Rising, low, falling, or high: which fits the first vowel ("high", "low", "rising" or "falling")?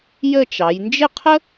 falling